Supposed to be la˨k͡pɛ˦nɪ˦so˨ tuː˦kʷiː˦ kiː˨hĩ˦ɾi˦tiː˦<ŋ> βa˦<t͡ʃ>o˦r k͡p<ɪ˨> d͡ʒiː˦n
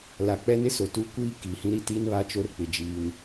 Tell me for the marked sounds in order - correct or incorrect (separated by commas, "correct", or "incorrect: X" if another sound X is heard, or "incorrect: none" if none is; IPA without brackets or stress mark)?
incorrect: n, correct, correct